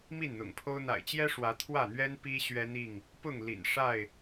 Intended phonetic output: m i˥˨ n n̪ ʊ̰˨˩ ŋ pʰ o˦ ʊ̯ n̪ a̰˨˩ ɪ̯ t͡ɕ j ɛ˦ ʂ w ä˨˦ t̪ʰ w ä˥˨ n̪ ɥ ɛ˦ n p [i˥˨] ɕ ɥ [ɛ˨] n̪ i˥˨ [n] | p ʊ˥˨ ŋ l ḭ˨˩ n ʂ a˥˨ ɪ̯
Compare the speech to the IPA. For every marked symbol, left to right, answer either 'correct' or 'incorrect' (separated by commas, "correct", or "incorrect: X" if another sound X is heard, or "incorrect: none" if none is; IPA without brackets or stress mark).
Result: incorrect: i˦, incorrect: ɛ˦, incorrect: ŋ